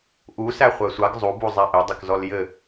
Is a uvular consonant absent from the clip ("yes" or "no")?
no